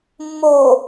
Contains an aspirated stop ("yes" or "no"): no